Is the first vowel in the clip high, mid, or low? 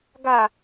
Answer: low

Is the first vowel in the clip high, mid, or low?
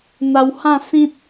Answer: low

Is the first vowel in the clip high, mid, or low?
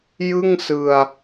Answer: high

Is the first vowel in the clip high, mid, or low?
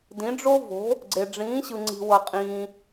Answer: high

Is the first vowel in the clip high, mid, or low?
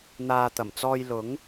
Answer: low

